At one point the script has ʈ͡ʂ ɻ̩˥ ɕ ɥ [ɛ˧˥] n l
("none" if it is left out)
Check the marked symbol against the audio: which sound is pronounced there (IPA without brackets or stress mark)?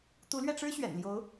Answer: ɛ̰˨˩